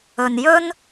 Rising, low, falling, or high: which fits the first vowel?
low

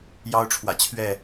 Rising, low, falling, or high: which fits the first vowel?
high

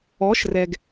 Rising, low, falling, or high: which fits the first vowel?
rising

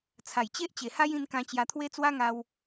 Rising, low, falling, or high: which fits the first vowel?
low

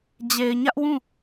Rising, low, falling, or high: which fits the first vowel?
low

